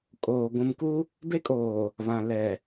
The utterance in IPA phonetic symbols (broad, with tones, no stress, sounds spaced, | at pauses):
kʼ oː˨ ɡʷ ũ˨ m k u˦ | b e˦ kʼ oː˨ | β ã˨ l ɛ˨